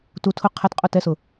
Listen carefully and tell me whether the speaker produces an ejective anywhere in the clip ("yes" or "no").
yes